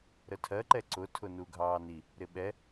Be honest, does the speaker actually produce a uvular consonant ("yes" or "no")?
no